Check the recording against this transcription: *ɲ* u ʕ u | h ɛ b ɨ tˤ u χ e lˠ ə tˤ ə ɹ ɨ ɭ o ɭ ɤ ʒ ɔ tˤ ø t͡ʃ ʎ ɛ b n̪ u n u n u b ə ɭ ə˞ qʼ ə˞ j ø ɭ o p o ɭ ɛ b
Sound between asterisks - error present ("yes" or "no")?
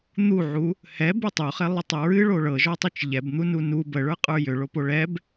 yes